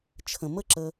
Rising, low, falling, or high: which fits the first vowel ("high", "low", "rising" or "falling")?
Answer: low